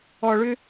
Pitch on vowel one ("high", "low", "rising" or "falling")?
low